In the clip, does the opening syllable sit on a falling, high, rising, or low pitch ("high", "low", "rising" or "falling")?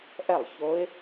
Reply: falling